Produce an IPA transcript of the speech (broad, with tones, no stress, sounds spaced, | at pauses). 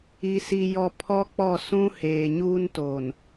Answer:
i˦ s i˦ j ɔ˦ pʰ ɔ˦ k͡p ɔ˦˨ s ũ˦ h eː˨ ɲ uː˦ n t oː˨ n